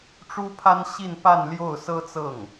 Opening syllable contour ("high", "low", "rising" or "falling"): high